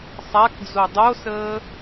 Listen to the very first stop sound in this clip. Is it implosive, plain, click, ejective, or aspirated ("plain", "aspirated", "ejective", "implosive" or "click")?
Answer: plain